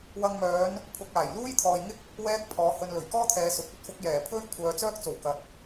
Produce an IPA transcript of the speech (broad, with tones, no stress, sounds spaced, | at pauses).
w ɐ˨ ŋ m œː˨˧ n | pʰ ʊ˨ k̚ aː˨˩ j l uː˥ j t̪ʰ ɔː˨ j ŋ ɪ˥ k̚ | w ɛː˥ k̚ pʰ ɔː˨˧ h ɵ˨ n l ɵ˨˩ ɥ k ɔː˥ t̪ʰ ɛː˨ s ʊ˨ k̚ ɵ˧ t̚ f ʊ˨˥ k̚ j ɛː˨˩ pʰ ɵ˥ ɥ kʷʰ œː˨ t͡s œː˥ k̚ t͡s o˨˩ w k ɐ˨ t̚